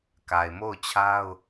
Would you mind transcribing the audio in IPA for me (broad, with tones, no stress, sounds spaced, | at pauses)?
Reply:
k a˨ ɪ̯ m o˦˨ ʊ̯ t͡ɕʰ a˦ ʊ̯